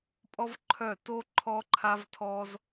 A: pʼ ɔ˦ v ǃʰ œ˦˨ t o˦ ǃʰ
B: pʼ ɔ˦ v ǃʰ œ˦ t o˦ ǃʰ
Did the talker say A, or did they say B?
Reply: A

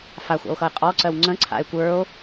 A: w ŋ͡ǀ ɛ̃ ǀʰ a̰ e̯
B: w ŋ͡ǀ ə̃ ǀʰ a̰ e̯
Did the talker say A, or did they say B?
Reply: B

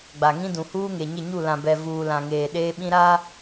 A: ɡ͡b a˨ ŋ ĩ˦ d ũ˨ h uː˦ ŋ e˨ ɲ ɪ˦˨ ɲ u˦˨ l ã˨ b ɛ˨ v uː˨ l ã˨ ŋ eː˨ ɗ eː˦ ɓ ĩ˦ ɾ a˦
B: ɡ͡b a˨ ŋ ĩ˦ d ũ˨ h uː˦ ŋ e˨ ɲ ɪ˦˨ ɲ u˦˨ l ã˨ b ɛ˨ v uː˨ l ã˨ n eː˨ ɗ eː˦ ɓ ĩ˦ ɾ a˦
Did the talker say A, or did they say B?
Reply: A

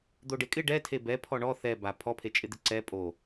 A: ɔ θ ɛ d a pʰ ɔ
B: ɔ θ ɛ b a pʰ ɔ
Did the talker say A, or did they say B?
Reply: B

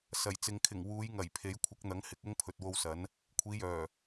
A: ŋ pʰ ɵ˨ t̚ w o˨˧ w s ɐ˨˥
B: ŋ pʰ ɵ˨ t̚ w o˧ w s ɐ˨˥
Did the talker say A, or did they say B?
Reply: B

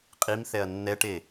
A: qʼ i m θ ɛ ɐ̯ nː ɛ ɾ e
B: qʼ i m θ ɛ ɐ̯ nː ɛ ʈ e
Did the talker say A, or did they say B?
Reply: B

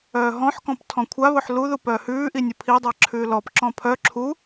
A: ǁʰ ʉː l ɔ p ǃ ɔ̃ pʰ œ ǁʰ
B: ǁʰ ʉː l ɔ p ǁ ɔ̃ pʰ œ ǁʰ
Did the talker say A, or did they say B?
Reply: B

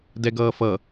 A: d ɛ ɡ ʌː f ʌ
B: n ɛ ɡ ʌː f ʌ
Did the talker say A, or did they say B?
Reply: A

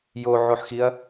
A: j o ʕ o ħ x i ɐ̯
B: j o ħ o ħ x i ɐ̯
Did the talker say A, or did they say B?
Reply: A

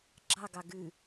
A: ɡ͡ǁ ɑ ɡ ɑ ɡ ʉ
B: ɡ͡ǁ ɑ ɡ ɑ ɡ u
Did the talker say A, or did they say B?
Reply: A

